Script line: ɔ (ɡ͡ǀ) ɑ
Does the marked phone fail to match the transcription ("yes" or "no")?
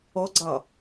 no